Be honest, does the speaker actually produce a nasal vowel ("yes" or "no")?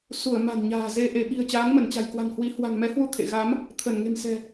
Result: no